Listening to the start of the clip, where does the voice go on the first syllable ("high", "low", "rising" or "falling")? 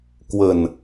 falling